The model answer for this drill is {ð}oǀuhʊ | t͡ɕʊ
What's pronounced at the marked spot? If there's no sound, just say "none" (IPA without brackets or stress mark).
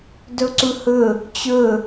d